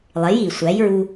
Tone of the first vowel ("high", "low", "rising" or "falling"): rising